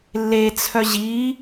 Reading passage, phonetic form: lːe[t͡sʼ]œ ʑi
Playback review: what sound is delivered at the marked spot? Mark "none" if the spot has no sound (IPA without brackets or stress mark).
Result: t͡sʰ